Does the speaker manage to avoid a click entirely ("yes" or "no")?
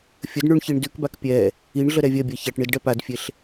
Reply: yes